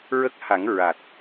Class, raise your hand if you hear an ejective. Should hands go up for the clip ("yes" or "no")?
no